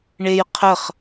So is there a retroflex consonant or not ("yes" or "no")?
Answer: yes